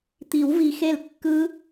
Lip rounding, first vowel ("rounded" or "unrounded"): unrounded